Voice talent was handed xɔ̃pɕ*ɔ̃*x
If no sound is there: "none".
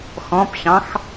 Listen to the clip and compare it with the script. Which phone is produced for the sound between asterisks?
ɑ̃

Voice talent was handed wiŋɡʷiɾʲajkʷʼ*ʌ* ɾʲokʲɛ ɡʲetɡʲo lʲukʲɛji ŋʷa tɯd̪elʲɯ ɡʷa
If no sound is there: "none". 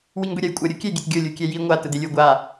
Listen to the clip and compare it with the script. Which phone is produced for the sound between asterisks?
ʌ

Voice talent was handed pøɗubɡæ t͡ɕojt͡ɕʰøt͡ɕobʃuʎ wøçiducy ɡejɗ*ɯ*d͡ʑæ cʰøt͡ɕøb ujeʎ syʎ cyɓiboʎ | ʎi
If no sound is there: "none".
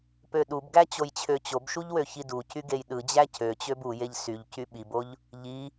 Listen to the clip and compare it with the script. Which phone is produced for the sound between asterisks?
ɯ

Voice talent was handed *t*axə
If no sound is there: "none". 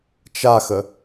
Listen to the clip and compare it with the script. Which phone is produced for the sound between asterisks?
t͡ʃ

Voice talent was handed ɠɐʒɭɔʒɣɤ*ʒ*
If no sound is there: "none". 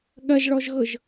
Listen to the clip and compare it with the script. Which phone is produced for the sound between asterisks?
ʒ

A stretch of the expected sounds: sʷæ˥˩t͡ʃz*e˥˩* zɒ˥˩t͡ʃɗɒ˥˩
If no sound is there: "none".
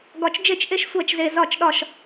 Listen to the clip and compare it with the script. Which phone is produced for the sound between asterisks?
e˨˩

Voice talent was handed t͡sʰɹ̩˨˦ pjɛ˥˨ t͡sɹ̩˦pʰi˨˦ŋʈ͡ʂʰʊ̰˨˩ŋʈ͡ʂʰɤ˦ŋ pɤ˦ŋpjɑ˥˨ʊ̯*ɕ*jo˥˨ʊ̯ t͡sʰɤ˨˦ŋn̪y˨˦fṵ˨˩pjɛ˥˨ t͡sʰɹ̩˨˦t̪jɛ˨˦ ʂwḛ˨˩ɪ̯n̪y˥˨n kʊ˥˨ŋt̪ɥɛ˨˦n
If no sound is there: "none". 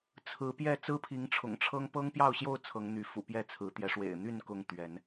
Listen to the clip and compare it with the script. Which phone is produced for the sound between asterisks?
ɕ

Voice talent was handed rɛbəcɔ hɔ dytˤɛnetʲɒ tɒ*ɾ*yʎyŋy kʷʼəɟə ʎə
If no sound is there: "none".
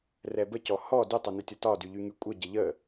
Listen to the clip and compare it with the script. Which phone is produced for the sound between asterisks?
d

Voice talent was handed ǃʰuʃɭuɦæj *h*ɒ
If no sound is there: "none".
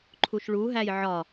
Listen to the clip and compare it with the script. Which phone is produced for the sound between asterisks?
ʕ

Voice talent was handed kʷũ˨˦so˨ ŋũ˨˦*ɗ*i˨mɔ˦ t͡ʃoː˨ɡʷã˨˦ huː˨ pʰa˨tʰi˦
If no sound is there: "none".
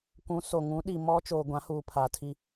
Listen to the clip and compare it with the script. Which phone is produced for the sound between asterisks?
ɗ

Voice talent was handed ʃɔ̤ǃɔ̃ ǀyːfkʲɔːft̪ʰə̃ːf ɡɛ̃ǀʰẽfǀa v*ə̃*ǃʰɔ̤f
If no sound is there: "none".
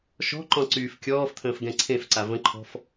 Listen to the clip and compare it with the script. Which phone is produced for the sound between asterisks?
ə̃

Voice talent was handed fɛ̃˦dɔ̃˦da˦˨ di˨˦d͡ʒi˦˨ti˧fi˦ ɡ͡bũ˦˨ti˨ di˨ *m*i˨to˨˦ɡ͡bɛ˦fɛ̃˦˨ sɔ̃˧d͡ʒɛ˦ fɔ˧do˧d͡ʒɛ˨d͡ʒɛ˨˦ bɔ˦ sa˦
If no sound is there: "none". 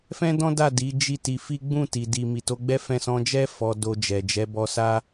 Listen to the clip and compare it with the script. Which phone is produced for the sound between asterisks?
m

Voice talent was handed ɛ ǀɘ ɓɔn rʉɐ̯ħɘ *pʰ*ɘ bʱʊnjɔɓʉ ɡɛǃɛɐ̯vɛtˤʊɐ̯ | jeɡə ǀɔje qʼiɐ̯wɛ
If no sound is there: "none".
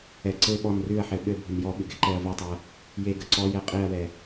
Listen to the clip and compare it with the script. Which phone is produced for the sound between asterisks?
ɓ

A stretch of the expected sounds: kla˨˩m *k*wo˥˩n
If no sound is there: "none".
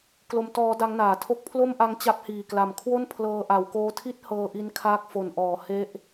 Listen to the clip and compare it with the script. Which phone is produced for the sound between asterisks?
kʰ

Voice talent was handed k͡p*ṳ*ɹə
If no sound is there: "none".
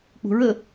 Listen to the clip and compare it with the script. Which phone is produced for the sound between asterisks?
ṳ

